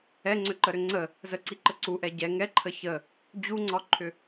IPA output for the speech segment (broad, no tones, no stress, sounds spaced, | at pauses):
ɛ ŋ͡ǀ ʏ ǃ ə ɾ ʏ ŋ͡ǀ ə | z ə ǀ i ǃ ə ǀ u ʔ ɛ ɟ ɛ ŋ ɛ ǃʰ ə ç ə | d͡ʑ u ŋ͡ǀ ɒ ǃʰ ʏ